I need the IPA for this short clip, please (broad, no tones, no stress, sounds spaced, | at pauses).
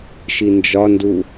ʃ i n d͡ʒ ɒ n d u